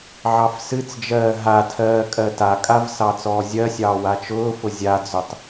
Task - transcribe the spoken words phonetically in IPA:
ʕ ɑ f s ɨ t͡s d͡ʒ ɜː ɦ a tʰ ɜː kʼ ɜ t a kʼ a v s ɑ t͡s ɔː zʲ ɜ sʲ ɑː w a t͡ʃ ʊː f ʊ zʲ a d͡z ʊ tˤ

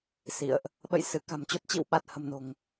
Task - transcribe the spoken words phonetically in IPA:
s ḭ˧˨ ə̯ ʔ | ɓ ə̰˧˨ j s ɨ˧˩ k a̤˨˩ m t͡ɕ o˨˩ t̚ t͡ɕ ḭ˧˨ w ɓ a˨˩ t̚ h ə̤˨˩ m n o̤˨˩ ŋ

